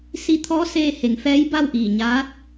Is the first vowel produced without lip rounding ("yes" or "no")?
yes